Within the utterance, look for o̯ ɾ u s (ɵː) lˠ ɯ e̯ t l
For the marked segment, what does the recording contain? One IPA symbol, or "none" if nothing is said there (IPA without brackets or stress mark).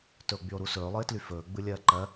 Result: ɵː